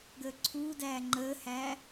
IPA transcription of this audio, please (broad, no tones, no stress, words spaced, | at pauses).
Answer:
ɡəːǀʰuːdæː ŋ͡ǃəːhæ